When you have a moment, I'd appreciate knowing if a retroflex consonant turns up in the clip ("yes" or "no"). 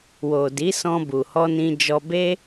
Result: no